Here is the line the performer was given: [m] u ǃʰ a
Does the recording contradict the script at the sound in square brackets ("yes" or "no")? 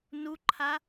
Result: yes